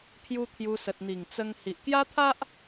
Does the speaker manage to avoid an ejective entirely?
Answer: yes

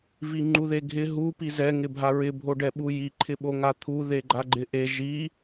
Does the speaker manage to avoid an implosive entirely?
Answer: no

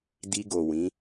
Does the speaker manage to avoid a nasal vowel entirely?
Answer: no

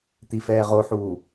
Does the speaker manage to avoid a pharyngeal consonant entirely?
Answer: no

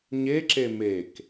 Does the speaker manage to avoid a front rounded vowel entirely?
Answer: yes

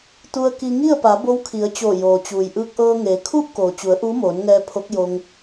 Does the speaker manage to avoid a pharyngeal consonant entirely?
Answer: yes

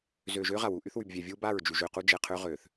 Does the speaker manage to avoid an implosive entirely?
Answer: yes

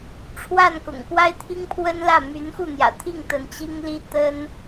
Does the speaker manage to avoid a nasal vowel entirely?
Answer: yes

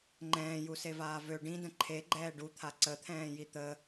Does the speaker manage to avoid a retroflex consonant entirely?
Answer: no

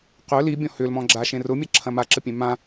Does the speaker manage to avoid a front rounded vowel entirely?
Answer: no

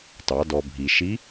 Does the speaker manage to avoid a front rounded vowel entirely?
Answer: yes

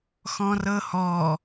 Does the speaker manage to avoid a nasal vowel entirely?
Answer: no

